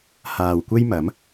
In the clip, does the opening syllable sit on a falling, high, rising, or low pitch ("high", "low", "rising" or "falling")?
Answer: low